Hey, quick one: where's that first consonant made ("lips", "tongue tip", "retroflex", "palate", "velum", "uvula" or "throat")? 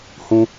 throat